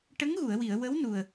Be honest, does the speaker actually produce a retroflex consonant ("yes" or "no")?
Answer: yes